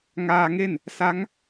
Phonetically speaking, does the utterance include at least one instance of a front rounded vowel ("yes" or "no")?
no